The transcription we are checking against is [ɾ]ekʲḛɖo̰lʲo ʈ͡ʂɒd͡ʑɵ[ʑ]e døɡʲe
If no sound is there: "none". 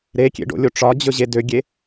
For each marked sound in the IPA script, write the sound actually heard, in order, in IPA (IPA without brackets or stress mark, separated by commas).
ɾ, ʑ